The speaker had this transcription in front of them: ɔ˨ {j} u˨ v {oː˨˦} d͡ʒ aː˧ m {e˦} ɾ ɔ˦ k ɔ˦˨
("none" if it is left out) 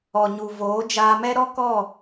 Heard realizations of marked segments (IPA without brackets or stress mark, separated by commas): ɲ, oː˨˦, ɛ˦